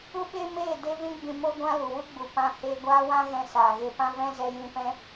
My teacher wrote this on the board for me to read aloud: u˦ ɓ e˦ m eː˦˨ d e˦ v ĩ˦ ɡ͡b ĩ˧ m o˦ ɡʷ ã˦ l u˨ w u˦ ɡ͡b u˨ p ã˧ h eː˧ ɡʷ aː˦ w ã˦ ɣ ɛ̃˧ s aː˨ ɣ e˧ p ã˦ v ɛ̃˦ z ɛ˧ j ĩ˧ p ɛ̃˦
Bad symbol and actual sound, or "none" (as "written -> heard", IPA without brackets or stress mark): none